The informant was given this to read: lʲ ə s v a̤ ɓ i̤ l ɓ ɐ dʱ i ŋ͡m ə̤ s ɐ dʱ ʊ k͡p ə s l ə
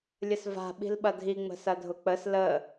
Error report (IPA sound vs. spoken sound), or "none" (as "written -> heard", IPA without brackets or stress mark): none